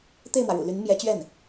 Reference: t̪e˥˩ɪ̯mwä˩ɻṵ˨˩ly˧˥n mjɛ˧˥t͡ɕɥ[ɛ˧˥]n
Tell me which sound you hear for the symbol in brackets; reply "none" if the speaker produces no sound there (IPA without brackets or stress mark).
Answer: ɛ˥˩